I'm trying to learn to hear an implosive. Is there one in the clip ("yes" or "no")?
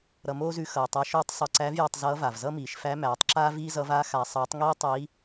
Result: no